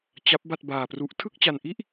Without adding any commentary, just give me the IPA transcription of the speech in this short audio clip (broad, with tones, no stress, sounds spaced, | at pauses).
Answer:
t͡ɕ a˦˥ p̚ b a˥˩ t̚ b aː˧ p r u˦˥ ʔ tʰ ɯ˥˩ k̚ t͡ɕ a˧ n ʔ i˥˩ ʔ